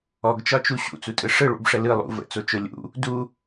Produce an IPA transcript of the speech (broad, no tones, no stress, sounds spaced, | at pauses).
ɔ ɡ t͡ʃ ɒ t͡ʃ u ɕ ṵ t͡s u tʼ ɯ ʂ ɯ ɭ ṵ b ʂ ə l ɯ lˠ ṵ v ə̰ t͡s o t͡ʃ o lʲ ṵ | d u